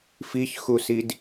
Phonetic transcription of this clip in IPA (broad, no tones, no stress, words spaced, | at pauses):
fiçxusid